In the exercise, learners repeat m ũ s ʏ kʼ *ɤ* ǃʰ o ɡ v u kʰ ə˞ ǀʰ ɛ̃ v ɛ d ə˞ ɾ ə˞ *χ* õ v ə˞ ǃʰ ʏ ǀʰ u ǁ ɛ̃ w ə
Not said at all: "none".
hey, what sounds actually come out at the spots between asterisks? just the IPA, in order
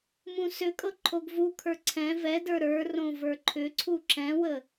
ɤ, r

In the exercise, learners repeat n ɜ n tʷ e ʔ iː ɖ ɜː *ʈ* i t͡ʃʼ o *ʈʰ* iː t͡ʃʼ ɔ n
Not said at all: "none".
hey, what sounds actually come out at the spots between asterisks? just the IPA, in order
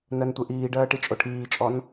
ʈ, ʈʰ

